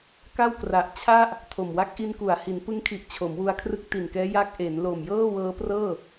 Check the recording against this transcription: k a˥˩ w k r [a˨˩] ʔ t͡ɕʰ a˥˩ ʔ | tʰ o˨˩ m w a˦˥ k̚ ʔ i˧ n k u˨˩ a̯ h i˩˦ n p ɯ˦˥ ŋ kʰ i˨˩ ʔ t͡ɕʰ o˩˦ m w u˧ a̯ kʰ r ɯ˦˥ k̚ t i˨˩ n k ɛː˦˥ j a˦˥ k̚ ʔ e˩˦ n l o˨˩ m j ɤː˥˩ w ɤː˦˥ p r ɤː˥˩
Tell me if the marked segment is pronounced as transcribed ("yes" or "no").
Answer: yes